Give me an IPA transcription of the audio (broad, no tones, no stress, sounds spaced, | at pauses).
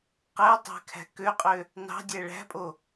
q æ tˤ æ̤ kʰ æ̤ k ø qʼ ø | n ɑ̤ dʲ æ ɭ æ̤ pʼ o